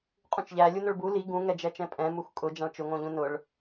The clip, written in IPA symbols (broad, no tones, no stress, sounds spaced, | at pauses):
qʼ ũ t͡ʃ ʎ æ lʲ u n ʊ ɭ b u l i ɡ ũ ŋ ɛ d͡ʒ ɛ t͡ʃ ɛ̃ pʼ ɛ̃ m u x kʼ ʊ d͡ʒ ã ɭ t͡ʃ ʊ ŋ õ ʎ ũ n ʊ ɭ